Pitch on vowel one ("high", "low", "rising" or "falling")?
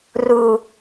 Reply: low